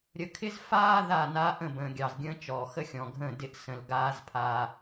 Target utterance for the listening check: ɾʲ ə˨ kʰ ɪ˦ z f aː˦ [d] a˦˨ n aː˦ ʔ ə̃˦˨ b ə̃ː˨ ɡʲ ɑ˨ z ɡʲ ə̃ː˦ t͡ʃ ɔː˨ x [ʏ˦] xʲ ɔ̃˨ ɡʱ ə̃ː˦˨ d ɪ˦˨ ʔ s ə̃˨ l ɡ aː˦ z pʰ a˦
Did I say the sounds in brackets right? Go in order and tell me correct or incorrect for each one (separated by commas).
incorrect, incorrect